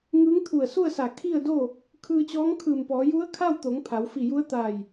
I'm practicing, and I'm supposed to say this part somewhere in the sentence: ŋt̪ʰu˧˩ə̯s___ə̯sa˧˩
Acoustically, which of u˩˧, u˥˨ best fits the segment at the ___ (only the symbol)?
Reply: u˥˨